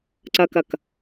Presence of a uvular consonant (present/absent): absent